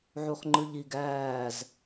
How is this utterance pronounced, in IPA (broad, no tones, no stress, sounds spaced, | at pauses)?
ʕ u χ ŋ͡ǃ ɯ ʎ i ɡ æː z